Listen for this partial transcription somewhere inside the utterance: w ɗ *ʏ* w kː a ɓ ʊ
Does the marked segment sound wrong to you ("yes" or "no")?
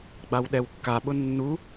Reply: yes